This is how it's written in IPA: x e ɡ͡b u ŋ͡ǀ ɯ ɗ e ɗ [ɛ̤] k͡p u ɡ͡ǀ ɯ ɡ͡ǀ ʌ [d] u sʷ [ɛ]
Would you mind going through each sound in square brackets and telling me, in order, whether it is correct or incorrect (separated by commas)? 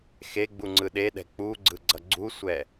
correct, incorrect, correct